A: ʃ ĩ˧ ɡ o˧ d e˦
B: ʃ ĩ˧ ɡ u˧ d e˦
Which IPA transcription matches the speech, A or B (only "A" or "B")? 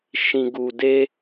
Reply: B